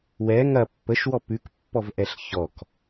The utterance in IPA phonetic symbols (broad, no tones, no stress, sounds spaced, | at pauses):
w ɛ ŋ ɐ pː ə ʃ w ɔ p ʉ k pː ɔ v ʔ ɛ ɬ ç ɔ k